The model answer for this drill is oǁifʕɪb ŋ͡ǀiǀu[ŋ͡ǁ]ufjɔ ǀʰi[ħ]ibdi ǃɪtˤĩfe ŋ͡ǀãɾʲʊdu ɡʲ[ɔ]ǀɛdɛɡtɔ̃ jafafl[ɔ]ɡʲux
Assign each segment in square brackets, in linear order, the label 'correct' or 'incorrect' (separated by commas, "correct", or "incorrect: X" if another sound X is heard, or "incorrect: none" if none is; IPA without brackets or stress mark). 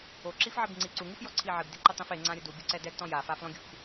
incorrect: ŋ, incorrect: ʕ, incorrect: ʊ, incorrect: ɔ̃